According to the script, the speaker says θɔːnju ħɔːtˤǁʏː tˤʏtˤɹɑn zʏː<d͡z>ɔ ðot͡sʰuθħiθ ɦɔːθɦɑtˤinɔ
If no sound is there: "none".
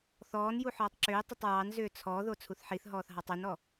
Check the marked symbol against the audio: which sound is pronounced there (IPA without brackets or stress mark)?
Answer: t͡sʰ